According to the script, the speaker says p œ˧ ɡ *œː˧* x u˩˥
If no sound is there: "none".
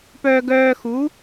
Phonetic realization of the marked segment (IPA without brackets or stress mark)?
œː˧